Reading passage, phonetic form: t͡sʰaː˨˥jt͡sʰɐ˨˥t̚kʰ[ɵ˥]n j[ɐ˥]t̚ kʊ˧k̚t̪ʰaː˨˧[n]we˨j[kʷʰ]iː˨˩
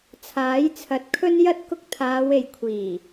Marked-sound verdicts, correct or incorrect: correct, correct, incorrect: none, correct

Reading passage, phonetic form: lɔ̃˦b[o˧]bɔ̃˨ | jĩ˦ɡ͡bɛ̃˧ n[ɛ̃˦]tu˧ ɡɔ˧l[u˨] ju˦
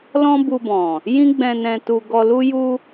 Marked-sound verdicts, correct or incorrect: incorrect: u˧, incorrect: ɛ̃˧, incorrect: u˦

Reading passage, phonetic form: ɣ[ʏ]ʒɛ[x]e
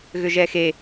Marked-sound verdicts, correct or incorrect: correct, correct

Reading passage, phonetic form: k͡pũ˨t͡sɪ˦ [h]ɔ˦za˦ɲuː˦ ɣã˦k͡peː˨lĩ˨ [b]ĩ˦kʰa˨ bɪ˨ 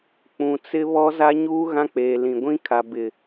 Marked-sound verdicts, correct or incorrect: incorrect: β, incorrect: ɡʷ

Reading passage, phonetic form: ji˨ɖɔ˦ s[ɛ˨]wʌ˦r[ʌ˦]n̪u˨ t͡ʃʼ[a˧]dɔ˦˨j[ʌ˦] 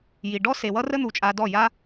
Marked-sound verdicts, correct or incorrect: incorrect: e˨, incorrect: ə˦, correct, incorrect: a˦

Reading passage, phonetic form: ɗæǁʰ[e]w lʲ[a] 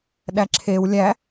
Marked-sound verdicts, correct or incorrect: correct, incorrect: æ

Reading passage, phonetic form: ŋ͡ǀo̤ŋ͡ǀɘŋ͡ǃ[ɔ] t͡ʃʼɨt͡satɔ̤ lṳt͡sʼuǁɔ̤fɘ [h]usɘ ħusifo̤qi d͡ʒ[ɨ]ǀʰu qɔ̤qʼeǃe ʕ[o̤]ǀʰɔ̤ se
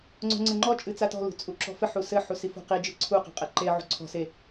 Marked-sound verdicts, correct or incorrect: correct, incorrect: ħ, correct, incorrect: ṳ

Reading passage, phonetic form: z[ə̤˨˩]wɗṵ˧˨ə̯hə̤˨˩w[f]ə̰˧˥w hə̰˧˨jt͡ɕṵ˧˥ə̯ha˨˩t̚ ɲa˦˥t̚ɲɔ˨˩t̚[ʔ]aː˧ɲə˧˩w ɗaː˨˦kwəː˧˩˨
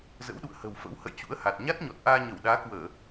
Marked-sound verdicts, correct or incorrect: incorrect: ə̰˧˥, correct, correct

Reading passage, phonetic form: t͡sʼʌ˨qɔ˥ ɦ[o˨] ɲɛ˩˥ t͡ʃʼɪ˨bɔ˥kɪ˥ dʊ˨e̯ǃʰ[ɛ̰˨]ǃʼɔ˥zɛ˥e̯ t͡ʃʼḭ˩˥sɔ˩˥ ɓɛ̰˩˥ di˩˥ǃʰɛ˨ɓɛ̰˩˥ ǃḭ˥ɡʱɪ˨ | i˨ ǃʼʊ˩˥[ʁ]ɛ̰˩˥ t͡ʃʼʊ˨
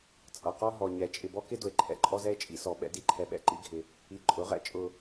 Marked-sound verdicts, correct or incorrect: incorrect: ɔ˨, correct, correct

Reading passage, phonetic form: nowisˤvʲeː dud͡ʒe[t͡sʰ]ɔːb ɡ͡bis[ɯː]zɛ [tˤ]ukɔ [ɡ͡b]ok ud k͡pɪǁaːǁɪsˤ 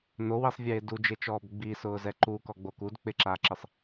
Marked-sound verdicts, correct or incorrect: incorrect: t͡ʃ, incorrect: ʊː, incorrect: ǃ, correct

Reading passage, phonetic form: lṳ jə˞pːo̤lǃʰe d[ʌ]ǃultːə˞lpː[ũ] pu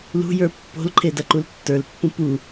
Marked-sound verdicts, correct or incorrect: correct, correct

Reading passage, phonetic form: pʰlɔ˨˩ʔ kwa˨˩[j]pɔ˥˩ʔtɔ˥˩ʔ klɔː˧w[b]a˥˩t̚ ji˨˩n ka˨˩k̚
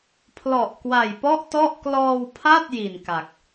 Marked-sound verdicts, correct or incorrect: correct, incorrect: pʰ

